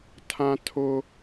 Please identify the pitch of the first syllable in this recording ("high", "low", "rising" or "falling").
high